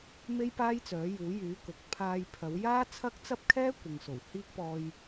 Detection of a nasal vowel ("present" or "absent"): absent